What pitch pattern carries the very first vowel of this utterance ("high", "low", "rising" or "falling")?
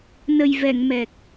low